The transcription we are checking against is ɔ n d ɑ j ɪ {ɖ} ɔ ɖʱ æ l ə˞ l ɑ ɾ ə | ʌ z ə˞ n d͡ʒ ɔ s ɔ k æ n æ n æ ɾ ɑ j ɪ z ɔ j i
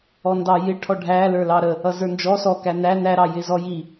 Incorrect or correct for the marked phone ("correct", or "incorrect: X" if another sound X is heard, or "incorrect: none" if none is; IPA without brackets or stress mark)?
incorrect: ʈʰ